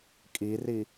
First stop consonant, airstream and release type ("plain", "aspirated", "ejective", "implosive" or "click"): ejective